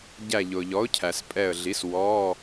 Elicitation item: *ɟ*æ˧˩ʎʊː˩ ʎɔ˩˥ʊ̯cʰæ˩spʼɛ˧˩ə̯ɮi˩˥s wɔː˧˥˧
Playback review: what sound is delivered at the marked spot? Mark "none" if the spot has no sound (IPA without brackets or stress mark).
ɟ